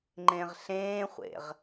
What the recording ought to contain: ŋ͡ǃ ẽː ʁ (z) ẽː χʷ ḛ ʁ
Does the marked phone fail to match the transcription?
yes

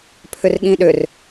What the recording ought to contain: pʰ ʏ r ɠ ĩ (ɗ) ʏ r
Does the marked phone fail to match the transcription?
no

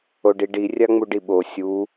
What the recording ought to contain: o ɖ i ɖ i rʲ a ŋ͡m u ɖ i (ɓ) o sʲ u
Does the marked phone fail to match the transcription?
no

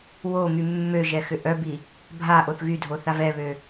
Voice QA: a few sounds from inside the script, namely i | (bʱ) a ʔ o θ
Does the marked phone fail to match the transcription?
no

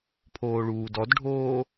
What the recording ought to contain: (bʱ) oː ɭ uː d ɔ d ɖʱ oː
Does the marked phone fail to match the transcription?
yes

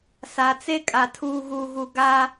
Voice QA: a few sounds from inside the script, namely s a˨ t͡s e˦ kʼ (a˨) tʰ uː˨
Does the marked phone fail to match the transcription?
no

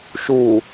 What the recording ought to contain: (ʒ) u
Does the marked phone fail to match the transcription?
yes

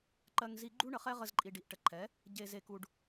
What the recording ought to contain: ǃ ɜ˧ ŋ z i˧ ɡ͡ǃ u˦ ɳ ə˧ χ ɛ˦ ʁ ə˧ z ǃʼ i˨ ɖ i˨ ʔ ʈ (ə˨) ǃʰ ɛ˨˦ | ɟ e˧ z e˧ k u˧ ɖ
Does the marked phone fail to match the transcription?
no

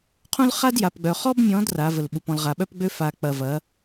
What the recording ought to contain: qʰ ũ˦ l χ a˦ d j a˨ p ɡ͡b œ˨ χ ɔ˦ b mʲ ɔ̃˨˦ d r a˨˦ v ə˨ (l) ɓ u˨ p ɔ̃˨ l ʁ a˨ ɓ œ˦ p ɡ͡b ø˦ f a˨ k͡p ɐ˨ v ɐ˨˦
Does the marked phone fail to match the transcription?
no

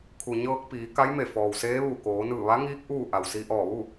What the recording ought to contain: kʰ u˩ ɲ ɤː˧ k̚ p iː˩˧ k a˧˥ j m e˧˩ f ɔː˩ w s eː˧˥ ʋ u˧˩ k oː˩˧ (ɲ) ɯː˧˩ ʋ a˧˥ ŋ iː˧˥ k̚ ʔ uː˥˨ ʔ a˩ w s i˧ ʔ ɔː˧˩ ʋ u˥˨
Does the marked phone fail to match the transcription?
yes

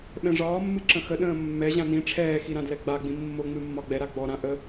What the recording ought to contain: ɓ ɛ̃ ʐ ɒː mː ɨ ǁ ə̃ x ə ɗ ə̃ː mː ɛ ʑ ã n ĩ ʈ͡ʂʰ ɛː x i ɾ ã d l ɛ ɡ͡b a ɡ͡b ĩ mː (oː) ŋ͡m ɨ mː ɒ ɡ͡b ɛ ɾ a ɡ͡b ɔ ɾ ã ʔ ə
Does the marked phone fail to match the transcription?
yes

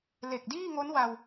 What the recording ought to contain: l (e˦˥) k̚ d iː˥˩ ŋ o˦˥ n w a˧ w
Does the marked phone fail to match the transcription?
yes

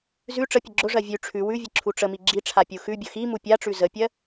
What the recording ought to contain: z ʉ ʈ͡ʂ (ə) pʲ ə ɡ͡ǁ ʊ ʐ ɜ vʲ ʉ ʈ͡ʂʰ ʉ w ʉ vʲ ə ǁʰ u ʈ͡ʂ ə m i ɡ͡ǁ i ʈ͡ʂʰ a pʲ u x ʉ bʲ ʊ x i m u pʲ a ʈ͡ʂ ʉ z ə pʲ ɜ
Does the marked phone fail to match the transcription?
no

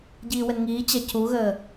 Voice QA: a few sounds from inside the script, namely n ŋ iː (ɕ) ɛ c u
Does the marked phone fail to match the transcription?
yes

